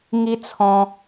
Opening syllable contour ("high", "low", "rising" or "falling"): high